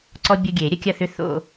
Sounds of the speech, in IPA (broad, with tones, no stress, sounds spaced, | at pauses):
ǀ ɔ˦ bʲ ʊ˦ ɡʲ e˨˩˦ ɾʲ ə˦ kʲ ɐ˥˨ θ ʏ˦ θ o̰˥˨